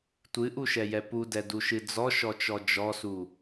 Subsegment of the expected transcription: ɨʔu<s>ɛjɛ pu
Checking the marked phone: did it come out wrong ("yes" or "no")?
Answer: yes